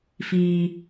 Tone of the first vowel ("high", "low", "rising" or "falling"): low